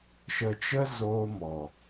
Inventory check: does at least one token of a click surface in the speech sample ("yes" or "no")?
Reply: no